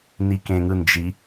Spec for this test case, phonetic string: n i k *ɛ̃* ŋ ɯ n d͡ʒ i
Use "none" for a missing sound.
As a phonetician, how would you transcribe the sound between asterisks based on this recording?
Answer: ẽ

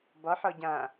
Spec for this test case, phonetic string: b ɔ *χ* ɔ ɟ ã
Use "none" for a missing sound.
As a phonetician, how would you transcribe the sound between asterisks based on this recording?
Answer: ħ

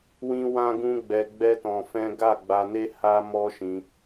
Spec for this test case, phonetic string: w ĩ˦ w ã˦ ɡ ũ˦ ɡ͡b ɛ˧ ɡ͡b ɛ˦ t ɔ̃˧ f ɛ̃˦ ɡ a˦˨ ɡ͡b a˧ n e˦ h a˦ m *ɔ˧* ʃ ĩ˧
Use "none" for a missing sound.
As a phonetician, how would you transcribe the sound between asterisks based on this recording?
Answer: ɔ˦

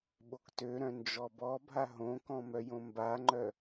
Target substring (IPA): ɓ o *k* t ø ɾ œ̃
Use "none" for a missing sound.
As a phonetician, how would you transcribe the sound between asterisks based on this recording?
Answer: k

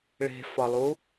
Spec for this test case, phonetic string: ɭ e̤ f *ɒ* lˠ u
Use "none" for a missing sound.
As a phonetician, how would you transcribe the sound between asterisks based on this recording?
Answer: ɒ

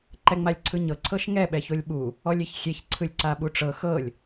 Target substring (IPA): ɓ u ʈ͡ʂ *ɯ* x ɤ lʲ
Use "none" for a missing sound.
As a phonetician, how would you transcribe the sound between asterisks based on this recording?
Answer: ɤ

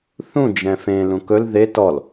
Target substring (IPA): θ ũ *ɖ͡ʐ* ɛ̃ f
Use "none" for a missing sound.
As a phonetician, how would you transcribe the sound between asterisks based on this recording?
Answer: d͡ʒ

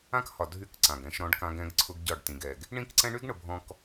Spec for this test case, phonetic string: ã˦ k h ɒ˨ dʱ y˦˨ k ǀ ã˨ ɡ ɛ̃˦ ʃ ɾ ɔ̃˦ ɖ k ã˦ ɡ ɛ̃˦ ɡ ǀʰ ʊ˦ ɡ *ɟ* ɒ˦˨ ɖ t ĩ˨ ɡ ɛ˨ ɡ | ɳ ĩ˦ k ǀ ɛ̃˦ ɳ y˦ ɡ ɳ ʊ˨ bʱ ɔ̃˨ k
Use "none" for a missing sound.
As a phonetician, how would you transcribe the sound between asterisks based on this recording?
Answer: ɟ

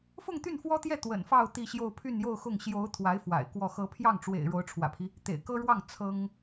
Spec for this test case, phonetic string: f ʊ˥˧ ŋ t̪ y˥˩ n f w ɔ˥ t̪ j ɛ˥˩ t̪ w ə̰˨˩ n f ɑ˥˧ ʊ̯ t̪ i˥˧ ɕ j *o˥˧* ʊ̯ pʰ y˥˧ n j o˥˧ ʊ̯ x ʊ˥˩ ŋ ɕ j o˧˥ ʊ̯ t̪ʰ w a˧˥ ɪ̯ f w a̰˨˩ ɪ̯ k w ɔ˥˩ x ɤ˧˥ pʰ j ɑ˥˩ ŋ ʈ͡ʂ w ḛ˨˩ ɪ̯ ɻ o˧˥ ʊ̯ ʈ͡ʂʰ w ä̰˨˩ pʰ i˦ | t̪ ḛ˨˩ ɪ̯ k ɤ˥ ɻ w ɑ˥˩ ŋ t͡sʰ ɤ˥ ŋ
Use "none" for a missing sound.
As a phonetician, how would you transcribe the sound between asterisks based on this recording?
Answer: o˥˧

